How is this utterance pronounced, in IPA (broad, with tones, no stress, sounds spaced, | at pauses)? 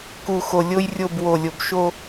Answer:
k u˨ x o˨ lʲ o˦ j rʲ o˦˨ b w o˨ lʲ o˨ b ʃ o˦